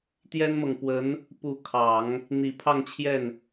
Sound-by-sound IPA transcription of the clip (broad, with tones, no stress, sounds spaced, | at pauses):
t̪ j ɛ˥ n m ɤ˨ ŋ p w ə˧˥ n | p u˧˥ kʰ ɑ˨˩˦ ŋ | n̪ i˨˩ pʰ ɑ˥˧ ŋ t͡ɕʰ j ɛ˥˩ n